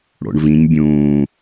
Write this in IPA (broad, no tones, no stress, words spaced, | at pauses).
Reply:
ɽo̰ɳvĩɲ bʲũː